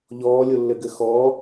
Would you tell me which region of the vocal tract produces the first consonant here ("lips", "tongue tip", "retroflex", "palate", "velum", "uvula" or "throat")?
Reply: palate